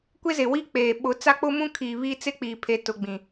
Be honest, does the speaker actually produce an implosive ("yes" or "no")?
yes